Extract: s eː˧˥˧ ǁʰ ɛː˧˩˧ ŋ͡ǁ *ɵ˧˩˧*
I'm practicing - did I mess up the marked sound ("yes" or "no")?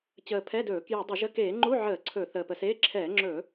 no